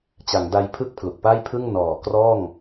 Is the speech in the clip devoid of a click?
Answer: yes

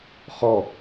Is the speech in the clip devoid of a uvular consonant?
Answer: no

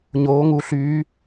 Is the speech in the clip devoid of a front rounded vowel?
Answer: no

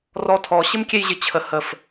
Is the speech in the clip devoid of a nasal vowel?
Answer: yes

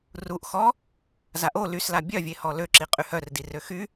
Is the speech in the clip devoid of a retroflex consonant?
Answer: yes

